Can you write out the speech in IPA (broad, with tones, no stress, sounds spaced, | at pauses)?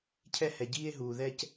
cʰ ɛ˥ h ɛ˧ ɟ iː˥ e̯ ɦ uː˧ ð ɛ˥ c